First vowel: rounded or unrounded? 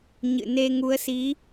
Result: unrounded